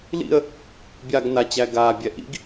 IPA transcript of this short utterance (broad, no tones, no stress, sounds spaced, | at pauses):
l ḭ ə̯ | bʲ a ɡ n a t͡ɕ æ ɡ aː bʲ ɛ ʔ ḭ ɡ